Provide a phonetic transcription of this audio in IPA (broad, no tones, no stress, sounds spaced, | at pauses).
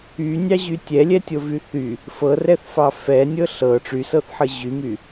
y nʲ ɑ ʑ y tʲ ɛ lʲ ɛ tʲ o v y θ y | f ɤ r ɛ θ f ɑ f ɛ nʲ ɤ ɬ ɤ ʈ͡ʂ y s ɤ θ ħ ɤ ʑ y m y